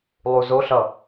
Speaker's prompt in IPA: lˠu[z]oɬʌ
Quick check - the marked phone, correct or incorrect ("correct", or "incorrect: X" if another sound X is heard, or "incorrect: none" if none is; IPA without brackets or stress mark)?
correct